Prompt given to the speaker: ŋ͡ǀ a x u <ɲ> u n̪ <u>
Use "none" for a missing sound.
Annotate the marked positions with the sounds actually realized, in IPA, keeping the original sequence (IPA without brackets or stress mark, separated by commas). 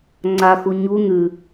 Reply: ɲ, ʉ